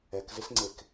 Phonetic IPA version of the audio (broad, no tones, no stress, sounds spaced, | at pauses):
ɛ k z ɪ s ŋ͡ǀ e k